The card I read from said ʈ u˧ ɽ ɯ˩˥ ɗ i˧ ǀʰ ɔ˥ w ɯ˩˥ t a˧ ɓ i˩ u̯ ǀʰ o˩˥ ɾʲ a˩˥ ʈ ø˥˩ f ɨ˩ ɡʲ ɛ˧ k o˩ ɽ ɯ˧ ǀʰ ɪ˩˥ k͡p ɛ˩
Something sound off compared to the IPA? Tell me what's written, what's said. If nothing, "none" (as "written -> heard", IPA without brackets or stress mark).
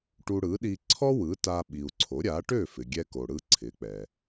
ɨ˩ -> ɪ˩